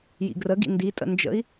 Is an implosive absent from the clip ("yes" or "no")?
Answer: yes